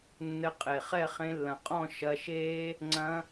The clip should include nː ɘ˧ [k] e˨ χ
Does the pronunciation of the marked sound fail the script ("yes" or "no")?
yes